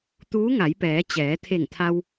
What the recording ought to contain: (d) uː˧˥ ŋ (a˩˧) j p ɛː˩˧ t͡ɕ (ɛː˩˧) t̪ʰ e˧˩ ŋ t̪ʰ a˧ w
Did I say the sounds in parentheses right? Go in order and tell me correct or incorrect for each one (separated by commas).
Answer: incorrect, correct, correct